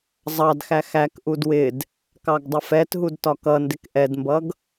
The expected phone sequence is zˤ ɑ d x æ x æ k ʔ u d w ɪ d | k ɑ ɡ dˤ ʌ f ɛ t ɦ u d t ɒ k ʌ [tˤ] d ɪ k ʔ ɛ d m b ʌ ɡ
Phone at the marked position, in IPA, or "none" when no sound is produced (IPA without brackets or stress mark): n